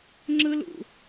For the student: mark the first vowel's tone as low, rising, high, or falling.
high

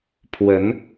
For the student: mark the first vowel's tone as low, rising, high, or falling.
rising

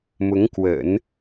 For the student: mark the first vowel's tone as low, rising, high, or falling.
rising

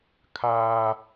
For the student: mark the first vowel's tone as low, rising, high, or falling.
high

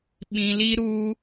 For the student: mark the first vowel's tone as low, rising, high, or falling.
low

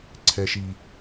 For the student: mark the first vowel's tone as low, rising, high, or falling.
high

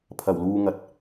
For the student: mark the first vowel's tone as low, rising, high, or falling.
low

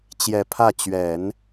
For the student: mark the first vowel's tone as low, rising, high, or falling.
low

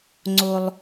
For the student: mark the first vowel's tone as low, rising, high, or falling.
low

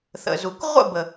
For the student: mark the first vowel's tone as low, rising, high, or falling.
low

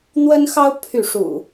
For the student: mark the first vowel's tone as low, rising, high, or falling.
high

